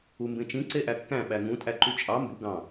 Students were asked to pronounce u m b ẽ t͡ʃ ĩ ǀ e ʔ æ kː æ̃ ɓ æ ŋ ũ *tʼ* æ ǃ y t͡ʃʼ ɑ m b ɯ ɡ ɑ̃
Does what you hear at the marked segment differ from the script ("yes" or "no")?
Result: no